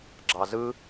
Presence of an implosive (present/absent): absent